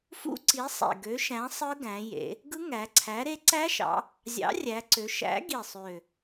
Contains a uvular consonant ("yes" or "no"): no